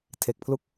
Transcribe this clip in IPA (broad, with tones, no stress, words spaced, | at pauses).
tʰe˨˩k̚pʰlu˦˥k̚